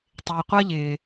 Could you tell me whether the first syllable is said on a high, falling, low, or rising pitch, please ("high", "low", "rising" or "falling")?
low